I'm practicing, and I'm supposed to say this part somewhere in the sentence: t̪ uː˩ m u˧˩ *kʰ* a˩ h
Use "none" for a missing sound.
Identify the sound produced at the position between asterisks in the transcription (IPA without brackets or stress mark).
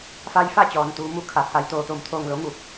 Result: kʰ